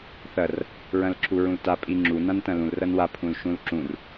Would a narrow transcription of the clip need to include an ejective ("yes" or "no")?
yes